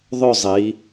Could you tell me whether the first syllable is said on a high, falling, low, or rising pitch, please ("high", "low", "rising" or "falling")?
falling